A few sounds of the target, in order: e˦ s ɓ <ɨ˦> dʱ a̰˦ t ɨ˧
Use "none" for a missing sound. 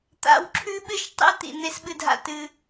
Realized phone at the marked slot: ɨ˦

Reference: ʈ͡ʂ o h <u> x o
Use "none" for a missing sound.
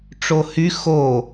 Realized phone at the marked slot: y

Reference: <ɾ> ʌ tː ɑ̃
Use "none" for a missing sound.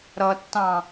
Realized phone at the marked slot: ɾ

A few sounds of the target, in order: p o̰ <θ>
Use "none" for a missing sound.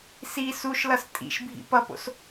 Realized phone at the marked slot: s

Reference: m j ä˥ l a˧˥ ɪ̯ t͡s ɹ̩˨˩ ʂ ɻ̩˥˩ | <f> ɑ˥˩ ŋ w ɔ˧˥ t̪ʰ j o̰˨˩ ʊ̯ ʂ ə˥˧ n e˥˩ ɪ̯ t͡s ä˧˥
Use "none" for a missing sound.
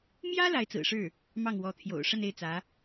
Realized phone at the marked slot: m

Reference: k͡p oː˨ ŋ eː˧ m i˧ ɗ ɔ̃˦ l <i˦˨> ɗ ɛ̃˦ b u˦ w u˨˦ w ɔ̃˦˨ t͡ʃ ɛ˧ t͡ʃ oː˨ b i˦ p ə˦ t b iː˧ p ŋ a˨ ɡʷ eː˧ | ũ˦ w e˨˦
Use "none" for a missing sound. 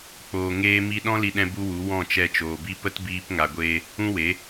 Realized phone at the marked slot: i˧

